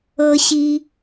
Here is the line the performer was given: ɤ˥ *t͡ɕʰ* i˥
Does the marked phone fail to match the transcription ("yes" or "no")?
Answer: yes